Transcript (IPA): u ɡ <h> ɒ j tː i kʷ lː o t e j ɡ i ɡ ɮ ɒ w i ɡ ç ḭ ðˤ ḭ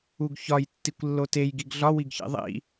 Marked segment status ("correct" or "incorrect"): incorrect